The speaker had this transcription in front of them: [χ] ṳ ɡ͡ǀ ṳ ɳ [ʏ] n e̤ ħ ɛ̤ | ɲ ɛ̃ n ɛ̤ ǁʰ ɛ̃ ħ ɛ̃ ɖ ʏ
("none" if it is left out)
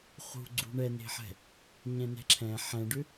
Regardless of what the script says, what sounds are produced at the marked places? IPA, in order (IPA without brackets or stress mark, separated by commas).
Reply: χ, ɛ